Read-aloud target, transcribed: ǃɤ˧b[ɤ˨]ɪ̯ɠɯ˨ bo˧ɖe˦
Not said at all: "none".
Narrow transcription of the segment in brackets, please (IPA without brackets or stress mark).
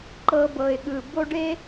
ɤ˨